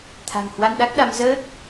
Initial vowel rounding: unrounded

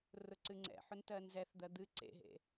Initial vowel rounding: rounded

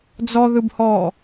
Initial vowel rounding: rounded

